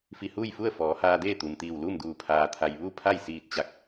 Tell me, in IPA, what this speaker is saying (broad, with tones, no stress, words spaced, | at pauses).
fi˧˩huː˥˨jfu˥˨ə̯ fɔː˩˧haː˧deː˥˨ t̪u˩mt̪iː˧˩wluː˥˨mduː˧˩ pʰaː˩t̪ʰa˩j ʋu˥˨pʰa˥˨j siː˧˩t̚t͡ɕa˧˩k̚